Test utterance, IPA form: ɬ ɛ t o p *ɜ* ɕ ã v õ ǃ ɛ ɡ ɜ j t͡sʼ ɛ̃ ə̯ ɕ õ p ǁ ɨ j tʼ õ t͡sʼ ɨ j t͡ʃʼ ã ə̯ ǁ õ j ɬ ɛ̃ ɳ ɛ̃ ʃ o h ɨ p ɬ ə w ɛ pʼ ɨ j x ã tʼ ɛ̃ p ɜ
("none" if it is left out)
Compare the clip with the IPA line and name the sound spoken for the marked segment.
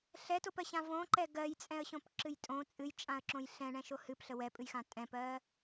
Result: ɜ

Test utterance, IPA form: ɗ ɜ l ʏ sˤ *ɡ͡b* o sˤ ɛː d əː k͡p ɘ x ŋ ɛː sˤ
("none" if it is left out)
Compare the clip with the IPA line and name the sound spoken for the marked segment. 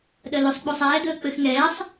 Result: ɡ͡b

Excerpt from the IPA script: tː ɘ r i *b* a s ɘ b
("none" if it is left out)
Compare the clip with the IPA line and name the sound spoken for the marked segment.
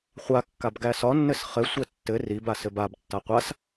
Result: b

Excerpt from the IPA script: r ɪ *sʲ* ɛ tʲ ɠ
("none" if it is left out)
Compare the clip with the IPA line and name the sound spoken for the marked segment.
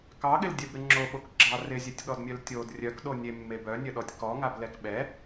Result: zʲ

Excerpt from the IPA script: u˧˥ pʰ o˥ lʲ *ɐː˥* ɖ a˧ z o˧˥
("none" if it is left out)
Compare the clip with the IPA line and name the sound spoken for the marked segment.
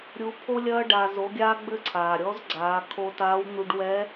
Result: ɐː˥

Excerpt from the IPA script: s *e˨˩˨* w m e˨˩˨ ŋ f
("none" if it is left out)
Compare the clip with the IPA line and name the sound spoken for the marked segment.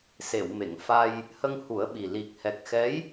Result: e˨˩˨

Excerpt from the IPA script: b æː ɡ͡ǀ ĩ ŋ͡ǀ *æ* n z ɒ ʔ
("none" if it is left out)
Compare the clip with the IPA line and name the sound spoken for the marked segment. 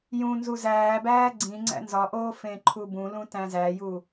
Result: æ̰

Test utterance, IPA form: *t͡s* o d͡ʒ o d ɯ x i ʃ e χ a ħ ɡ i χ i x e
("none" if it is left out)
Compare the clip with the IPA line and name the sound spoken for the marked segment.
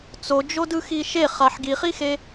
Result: t͡s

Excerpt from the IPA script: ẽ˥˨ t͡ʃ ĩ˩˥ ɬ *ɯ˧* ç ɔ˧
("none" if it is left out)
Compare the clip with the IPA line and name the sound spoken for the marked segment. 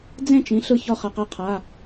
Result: ɯ˧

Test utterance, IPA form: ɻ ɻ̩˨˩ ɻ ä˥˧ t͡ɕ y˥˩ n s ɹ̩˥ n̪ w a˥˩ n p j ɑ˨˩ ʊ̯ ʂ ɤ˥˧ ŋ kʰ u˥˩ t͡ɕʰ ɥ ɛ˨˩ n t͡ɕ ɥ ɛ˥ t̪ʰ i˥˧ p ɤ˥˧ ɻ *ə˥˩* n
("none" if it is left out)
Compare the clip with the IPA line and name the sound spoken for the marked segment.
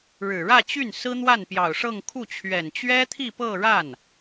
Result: a˥˩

